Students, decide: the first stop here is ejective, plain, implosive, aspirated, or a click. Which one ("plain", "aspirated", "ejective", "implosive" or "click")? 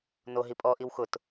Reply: ejective